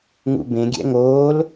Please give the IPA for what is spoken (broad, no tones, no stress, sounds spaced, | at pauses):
ŋ ṵ b ẽ ɡʲ ɛ̰ ŋ oː l